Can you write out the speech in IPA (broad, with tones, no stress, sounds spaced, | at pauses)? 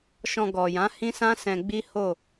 ʃ ɔ̃˨ ɡ ɔ˨ j ã˨˦ h ĩ˦ s ã˦ s ɛ̃˧ ɡ͡b i˦ h o˦˨